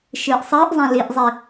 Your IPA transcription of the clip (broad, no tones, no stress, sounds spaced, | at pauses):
ʃ ɨː ʔ sˤ ɨː ʔ zˤ ã l i ʔ zˤ i